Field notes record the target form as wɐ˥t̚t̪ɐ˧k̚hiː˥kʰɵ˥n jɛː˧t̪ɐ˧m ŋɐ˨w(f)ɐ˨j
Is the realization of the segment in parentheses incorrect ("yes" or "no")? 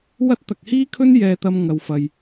no